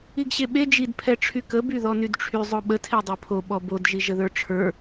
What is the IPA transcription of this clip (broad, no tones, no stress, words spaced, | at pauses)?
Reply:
iɡɕeɓe d͡ʒid pʰɛʈ͡ʂʰykə byðɔnydʈ͡ʂʰy zˤoɓə tʰedˤepʰo ɓɔbod ʒiʒəðə˞ʈ͡ʂʰə˞